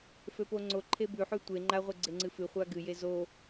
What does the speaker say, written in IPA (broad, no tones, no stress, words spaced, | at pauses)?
føpoŋ͡ǀoǃʰe bʉħʉ tʷe ŋ͡ǃaʁʷe ɡ͡ǀeŋ͡ǀɨfɨχʷa ɡɨje zo